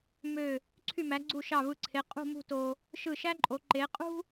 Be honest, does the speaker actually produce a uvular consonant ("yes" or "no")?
yes